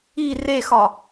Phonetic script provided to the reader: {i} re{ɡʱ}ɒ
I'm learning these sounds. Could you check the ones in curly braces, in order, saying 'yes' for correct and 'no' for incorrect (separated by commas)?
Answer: yes, no